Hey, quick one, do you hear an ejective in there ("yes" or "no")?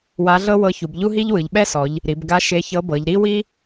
no